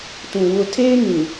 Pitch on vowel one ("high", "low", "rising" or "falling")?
low